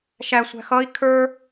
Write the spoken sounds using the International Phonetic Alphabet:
ʃ æ sʷ æ̤ x ʌ i̯ kʰ ə˞

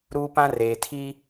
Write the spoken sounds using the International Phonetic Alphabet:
ɾ uː˦ p ã˦ r eː˨ tʰ i˦

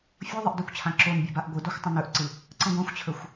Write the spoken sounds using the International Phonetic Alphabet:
fʲ o ðˤ ə ʔ d ɵ kʷ t͡ɕʰ ã ǁ o n bʲ œ b a ʔ ɡʷ ɨ d o xʷ tˤ ə̃ n ɵ ʔ ǀ ɨ | ǀ ə̃ ɡʷ ã xʷ t͡ɕʰ ɵ xʷ

